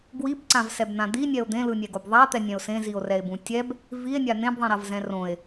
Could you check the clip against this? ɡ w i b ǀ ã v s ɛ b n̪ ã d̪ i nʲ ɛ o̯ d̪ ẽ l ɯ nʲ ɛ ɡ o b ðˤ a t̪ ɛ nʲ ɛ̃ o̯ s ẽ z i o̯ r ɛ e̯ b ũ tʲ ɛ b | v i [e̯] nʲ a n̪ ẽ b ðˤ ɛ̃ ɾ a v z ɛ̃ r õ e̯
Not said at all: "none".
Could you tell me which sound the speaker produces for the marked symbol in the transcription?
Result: e̯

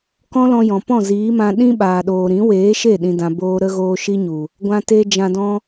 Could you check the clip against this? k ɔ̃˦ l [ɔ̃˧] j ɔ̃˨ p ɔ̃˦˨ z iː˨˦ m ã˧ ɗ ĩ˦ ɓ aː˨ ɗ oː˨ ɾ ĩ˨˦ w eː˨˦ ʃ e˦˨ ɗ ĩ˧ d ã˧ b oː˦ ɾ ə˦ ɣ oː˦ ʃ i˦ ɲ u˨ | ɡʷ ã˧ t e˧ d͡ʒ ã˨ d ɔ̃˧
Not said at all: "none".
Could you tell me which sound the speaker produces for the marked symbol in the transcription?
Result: ɔ̃˧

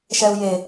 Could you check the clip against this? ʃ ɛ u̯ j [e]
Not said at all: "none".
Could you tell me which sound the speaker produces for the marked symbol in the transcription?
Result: e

